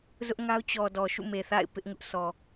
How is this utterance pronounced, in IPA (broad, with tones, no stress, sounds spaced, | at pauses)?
z ʊ˦ ʔ ŋ a˦ ʊ̯ t͡ɕ ɔ˨ d ɔ˨ ʃ ṵ˦˨ m e˨ θ a̰˦˨ ɪ̯ p ɪ˦ ʔ ŋ ʊ˦ ʔ sʰ ɔ˨